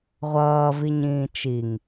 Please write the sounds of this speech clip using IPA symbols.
ʁʷ ʌː v i ɲ ĩː t͡ʃ i ŋ

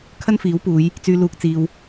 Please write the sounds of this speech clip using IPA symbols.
kʰ ɐ˥ n f iː˨˥ w p uː˨˧ j | t͡s yː˧ l uː˨ k̚ t͡s iː˨ w

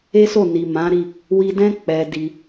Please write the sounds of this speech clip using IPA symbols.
e˦ s o˦˨ n i˨ m ã˨˦ ɾ i˦˨ | w i˧ d ɛ̃˦ k͡p ɛ˧ d i˧

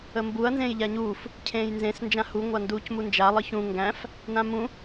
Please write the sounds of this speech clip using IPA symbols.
ə m b u ɐ̯ n z ẽː j ʎ a ɲ uː f | cʰ ẽː j n z ẽ s n d͡ʒ ã h u ŋʷ a n d uː c m u n d͡ʒ a lˠ ɯ ç ũ ŋ ɡ æ̃ f | n ã m ũ

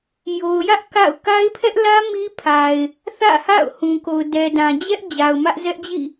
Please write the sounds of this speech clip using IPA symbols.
j o˨ ʊ̯ j ä˦ ʔ k a̰˦˨ ʊ̯ k a˦ ɪ̯ pʰ ɛ˦ ʔ l ä˦ m i˦ pʰ a˨ ɪ̯ | θ ä̰˦˨ h a̰˦˨ ʊ̯ h ũ˨ k o˨ ʊ̯ d ɛ˨ d ã˨ d͡ʑ ɛ˦ ʔ d͡ʑ a˨ ʊ̯ m ä˦ ʔ z ɛ˦ ʔ d͡ʑ ḭ˦˨

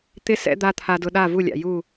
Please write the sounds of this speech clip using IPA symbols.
t̪ ɪ˦ s ɛ̰˦ d̪ a˦ t̪ʰ a˧ d ʊ˧ ɗ a˦˨ v u˦˨ lʲ a̰˨ j u˦˨

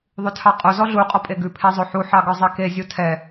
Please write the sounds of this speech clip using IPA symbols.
ðˤ ʉ tʰ ɑ qʼ o z ɔ ɮ u qʼ ɔ pʼ e ɡ ʉ pʰ e zˤ o ħ u ħ ɑ ɡ œ zˤ e k e zʲ u tʰ ɛ

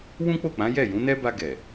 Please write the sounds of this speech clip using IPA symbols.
w ũ˦ k͡p o˦˨ k͡p ã˨˦ j ɛ˦˨ j ũ˨˦ n ɛ˦ b a˧ ɡ ɛ˨

